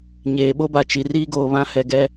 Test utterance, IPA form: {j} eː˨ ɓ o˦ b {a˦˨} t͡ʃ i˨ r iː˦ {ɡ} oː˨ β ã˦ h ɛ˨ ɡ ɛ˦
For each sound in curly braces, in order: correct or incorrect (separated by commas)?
incorrect, incorrect, correct